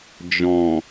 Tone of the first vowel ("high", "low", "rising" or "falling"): low